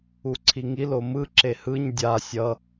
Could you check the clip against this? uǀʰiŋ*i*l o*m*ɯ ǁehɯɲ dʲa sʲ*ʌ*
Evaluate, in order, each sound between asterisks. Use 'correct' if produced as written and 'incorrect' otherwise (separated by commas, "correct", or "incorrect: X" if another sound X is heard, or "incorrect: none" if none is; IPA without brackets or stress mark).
correct, correct, correct